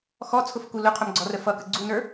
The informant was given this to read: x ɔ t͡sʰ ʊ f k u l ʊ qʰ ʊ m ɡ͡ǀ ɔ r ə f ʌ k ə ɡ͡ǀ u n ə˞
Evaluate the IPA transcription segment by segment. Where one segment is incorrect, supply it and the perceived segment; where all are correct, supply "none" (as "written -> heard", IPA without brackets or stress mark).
none